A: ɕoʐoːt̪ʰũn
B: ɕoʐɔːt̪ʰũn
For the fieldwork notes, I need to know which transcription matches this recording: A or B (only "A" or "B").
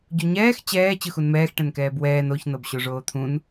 A